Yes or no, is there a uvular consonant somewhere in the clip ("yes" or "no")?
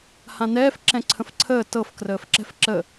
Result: no